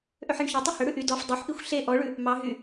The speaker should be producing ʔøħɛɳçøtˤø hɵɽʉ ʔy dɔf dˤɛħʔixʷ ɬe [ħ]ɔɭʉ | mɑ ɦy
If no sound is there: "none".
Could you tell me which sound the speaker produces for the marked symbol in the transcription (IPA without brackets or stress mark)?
ʔ